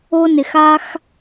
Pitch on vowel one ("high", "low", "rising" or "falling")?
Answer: high